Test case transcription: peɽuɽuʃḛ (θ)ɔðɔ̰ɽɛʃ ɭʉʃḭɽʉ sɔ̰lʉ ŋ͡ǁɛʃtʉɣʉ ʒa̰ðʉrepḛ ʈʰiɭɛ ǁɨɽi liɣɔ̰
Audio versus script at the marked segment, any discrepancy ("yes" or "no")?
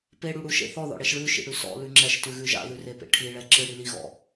no